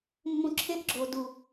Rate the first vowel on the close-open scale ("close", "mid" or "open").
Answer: close